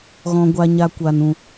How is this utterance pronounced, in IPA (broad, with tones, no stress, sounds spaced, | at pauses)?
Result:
ɣ ɔ̃˧ ɡʷ a˧ ɲ a˦ kʷ a˧ n ũ˧